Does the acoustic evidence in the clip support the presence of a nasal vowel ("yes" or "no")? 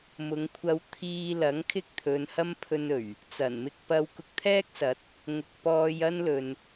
no